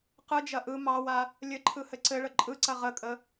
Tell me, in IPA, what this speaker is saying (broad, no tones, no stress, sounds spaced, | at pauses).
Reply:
q ɯ d͡ʒ ɐ ʔ ɯ m ɑ w a | lʲ ɘ ǃʰ ɯ h ɘ ǀ ɘ ɭ ə ǃʼ ɯ ǀ ɐ ʁ ə kʼ ə